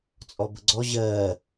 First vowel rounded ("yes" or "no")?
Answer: yes